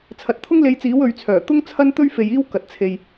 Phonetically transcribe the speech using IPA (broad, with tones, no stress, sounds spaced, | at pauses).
t͡sʰ ɐ˨ t̚ t̪ʰ ʊ˥ ŋ l e˧ j t͡s iː˨˥ w ɵ˨˧ ɥ t͡sʰ œː˨˩ t̪ ʊ˥ ŋ t͡sʰ ɐ˥ n t̪ ɵ˥ ɥ f e˨ j iː˥ w k ɐ˨ t̚ t͡sʰ e˨ j